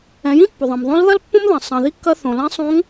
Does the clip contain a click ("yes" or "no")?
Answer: no